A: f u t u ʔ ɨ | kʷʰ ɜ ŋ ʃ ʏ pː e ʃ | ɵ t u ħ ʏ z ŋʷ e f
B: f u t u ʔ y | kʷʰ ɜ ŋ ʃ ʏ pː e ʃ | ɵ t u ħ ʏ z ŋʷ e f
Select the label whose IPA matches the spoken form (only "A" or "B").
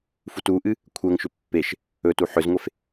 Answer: A